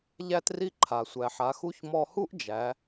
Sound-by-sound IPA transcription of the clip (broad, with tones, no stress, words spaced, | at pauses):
ʎæ˥tri˥ǃʰa˩ sʷæ˩ħa˩˧xu˧˥ç mɔ˧hu˥ʔd͡ʒæ˩˧